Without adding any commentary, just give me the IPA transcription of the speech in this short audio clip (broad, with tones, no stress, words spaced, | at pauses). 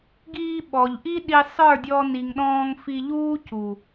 ɡiː˧ ɓɔ˨ʎʔi˦ ɗi˨ sˤə˞˦˨dʲɔ˧ni˨ŋɗɔ̃ː˧ŋ fi˧ʎuː˦ cu˨